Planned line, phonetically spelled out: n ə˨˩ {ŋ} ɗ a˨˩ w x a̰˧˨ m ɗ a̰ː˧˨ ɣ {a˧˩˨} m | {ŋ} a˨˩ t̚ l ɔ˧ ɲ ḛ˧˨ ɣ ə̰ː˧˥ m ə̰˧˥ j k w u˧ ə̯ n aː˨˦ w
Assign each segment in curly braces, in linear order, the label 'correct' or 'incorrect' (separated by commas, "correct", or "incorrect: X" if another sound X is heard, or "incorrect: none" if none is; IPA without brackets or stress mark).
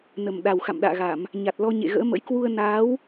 incorrect: m, correct, incorrect: ɲ